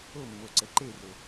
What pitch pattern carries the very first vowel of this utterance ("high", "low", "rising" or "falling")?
falling